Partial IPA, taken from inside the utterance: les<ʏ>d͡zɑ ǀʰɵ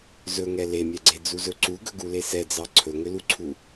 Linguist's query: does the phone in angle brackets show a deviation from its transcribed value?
yes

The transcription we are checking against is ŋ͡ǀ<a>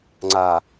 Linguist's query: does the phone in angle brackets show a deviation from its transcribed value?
no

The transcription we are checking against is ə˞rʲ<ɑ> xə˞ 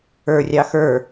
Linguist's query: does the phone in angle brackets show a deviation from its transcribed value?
no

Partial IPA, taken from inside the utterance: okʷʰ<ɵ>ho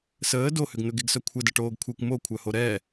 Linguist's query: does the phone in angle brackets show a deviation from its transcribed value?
yes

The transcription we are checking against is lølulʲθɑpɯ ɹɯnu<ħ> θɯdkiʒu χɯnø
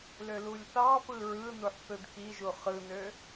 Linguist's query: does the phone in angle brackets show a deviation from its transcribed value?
no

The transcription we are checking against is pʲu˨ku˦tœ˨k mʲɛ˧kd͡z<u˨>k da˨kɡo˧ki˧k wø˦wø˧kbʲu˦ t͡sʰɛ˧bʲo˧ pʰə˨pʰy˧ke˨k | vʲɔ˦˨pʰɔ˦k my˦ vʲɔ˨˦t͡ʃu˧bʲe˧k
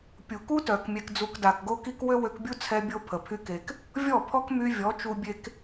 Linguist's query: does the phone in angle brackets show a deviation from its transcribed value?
yes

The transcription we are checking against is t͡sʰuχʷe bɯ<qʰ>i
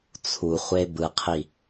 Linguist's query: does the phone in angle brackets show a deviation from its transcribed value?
no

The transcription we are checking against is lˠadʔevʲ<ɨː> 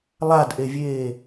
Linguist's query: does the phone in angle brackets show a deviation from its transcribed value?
yes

